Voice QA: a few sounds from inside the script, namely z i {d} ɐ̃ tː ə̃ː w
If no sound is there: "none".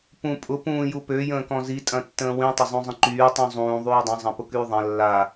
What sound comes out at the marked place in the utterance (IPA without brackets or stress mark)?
tʼ